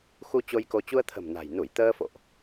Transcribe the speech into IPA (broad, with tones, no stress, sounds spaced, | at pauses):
x u˧ t͡ɕ o˧ j k o˧ t͡ɕ u˧ ə̯ t̪ʰ ə̤˨˩ m n a̤˨˩ j n u˧˩ j t̪ əː˧ f o̰˧˨ ʔ